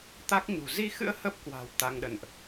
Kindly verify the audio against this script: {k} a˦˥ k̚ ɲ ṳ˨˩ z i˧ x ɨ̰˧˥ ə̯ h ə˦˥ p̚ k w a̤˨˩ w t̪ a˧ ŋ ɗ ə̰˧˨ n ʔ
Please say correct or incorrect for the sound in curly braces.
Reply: incorrect